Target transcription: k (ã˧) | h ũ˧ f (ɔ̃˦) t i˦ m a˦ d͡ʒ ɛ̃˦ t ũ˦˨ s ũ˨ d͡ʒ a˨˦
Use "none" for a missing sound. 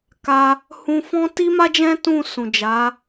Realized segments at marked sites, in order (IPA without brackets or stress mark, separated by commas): a˧, ɔ̃˦